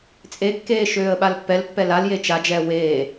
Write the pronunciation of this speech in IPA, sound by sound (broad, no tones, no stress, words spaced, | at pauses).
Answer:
t͡sʼekːeː ʃøːə̯ɓalpːɛlpːɛ lalje t͡ʃad͡ʒɛː weː